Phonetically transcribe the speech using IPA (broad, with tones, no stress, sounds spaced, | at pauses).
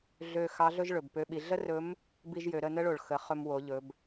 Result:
ɮ ø˧ x ɑ˧˥ ɮ ɵ˥ ʒ ɭ ɵ˩ b p ø˧˥ ɓ i˩˧ ɮ ə˥ r ɵ˧˥ m | b i˥ ʒ j ø˩˧ ɾ ə˧ n ə˥ ɭ o˩ ɭ x ə˩˧ χ ɵ˧ m w o˩˧ ʎ ɵ˩˧ b